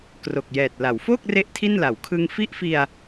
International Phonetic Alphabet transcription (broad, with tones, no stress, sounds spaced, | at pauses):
k r o˨˩ k̚ j ɛː˨˩ t̚ l a˩˦ w f oː˥˩ k̚ r e˥˩ ʔ tʰ i˥˩ n l a˩˦ w kʰ ɯ˧ ŋ f i˥˩ ʔ f i˧ a̯